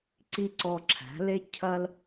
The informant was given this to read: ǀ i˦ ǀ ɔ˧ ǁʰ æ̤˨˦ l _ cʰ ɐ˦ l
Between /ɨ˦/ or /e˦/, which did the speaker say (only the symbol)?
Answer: e˦